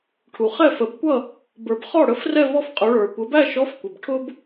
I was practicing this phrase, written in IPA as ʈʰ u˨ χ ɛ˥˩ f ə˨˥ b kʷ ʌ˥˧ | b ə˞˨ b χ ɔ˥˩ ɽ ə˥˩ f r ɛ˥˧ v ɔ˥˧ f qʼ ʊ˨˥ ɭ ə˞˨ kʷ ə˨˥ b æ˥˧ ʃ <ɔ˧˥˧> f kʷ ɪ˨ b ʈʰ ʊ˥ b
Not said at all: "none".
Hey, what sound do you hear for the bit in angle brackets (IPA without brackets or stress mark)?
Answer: ɔ˧˥˧